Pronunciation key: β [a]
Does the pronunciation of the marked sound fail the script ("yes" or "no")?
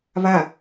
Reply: no